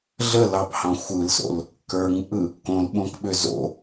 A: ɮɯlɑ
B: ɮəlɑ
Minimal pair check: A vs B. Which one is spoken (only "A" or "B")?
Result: B